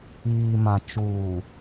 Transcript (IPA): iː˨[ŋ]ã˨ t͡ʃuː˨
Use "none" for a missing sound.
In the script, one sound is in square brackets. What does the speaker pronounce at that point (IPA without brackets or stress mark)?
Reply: m